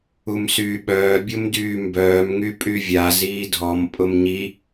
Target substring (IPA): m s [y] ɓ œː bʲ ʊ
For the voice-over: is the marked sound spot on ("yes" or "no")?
no